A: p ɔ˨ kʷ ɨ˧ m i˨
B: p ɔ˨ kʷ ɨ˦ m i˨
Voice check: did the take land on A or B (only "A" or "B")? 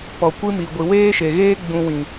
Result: B